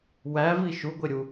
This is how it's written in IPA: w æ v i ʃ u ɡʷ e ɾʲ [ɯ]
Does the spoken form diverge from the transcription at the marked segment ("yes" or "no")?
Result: yes